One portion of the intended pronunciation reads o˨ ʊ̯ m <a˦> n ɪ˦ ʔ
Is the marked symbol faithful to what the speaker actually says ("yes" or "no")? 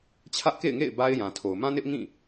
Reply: no